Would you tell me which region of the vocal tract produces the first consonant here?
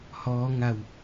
throat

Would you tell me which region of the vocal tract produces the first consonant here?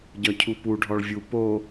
palate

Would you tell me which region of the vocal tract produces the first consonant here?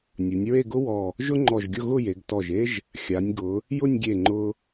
tongue tip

